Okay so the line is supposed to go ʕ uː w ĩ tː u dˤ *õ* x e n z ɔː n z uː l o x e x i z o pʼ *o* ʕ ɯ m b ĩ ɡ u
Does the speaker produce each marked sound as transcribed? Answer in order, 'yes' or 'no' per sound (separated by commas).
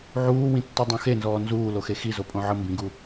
yes, no